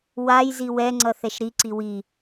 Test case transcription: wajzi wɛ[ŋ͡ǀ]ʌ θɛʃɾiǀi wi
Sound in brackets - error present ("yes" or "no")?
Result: no